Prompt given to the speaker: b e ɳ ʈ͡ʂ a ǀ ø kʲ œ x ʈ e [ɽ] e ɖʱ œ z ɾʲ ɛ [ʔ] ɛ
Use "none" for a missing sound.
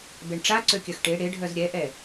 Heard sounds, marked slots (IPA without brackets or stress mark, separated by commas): ɽ, ʔ